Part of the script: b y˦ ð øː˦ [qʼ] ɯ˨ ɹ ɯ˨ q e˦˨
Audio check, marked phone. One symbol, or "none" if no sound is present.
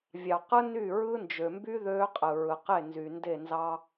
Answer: qʼ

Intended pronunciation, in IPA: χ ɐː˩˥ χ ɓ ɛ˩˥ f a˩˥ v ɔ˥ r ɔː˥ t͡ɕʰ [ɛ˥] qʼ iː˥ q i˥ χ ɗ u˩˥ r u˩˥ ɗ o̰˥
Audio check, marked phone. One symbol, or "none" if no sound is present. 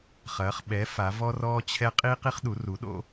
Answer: ɛ˥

